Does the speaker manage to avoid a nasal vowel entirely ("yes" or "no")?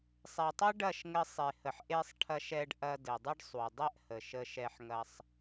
yes